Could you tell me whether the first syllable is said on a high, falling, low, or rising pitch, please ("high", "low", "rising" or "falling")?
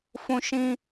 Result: high